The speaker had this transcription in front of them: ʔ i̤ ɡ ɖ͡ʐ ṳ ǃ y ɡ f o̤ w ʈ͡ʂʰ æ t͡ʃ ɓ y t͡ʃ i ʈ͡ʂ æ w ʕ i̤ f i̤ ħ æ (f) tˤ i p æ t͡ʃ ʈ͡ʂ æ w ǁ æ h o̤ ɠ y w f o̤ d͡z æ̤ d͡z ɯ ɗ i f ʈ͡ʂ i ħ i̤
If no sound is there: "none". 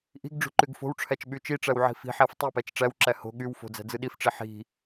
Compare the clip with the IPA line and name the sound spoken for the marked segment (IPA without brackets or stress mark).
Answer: f